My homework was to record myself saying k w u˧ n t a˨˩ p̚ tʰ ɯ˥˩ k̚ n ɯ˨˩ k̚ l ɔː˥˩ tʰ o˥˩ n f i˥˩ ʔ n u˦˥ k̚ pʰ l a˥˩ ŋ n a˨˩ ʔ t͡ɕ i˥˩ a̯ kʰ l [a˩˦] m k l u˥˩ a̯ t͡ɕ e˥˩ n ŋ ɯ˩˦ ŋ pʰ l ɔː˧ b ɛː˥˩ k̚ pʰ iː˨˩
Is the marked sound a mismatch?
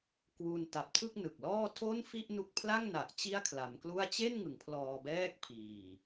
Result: no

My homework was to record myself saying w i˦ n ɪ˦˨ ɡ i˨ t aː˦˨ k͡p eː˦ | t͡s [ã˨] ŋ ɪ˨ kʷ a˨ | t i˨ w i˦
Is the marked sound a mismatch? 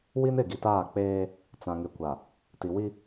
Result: no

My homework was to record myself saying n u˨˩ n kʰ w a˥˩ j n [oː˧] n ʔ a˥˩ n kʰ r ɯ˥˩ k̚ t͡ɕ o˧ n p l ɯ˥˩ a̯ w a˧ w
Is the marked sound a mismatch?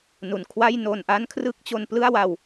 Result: yes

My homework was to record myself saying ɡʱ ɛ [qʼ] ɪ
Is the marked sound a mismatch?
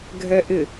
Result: yes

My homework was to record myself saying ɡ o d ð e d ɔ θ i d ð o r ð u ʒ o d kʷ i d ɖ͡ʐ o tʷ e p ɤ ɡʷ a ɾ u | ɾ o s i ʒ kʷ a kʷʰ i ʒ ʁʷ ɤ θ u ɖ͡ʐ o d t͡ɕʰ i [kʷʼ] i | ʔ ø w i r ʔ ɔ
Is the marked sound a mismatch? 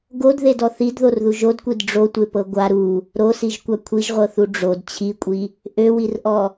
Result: no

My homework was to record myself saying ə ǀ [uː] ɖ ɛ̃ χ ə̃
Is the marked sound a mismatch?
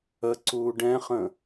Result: no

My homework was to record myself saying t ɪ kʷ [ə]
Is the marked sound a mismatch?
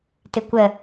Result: no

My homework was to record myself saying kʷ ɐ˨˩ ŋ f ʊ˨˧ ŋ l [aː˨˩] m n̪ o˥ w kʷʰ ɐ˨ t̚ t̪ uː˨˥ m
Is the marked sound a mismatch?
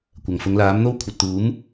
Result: yes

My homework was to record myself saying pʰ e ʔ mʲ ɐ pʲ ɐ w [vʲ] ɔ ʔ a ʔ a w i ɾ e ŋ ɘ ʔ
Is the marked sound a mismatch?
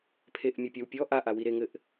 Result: yes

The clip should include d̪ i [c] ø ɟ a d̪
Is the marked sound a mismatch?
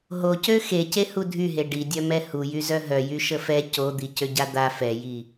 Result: no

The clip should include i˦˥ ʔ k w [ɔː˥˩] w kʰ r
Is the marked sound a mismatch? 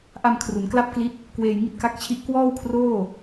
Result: no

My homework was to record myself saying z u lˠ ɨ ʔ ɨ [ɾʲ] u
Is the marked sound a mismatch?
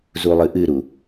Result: yes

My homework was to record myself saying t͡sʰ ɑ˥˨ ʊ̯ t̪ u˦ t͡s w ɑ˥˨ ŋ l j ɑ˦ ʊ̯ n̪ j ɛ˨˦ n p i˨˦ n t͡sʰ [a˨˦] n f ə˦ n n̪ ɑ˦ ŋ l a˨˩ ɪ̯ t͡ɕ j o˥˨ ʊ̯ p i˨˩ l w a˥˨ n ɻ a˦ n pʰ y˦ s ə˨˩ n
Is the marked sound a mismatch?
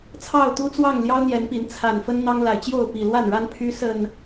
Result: yes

